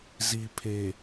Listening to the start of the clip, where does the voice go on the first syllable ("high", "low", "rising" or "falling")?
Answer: low